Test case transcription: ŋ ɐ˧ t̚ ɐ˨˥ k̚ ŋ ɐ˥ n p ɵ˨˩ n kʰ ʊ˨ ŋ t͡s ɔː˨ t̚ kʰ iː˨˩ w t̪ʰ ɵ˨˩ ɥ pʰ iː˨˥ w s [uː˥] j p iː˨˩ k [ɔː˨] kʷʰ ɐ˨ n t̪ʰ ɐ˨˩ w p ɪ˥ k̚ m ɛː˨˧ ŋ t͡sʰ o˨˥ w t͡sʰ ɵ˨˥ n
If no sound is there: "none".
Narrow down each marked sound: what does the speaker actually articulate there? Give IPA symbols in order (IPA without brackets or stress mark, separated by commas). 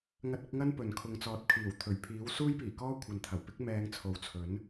uː˥, ɔː˥